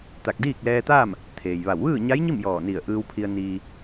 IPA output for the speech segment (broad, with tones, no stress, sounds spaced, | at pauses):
t̪ a˧˩ k̚ d iː˥˨ k̚ l ɛː˧ t̪ aː˥˨ m | t̪ʰ eː˩ j ʋ a˧˩ w ʋ ɯː˥˨ ɲ a˧˥ j ɲ i˥˨ m j ɔː˧˩ n i˧˩ ə̯ ʔ ɯː˧ w pʰ i˧ ə̯ n iː˧